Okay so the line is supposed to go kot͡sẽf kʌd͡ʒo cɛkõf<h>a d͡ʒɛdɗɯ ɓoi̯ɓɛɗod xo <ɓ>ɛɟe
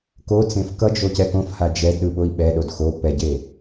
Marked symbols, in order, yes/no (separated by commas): yes, no